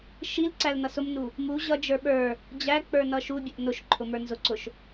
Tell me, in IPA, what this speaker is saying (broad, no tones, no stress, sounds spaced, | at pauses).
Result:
ʃ i l ǀ æ l n ʌ s ʊ m n u | m u ʑ ʌ d͡ʒ ə˞ ɓ ə˞ | d͡ʑ æ k͡p ə˞ n ʌ ʃ u bʲ ʊ ʔ n ʊ ʃ ǃʰ ʊ m ə˞ n z ʊ ǀ ʊ ʃ